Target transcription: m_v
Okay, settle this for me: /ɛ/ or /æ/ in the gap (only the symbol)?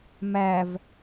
æ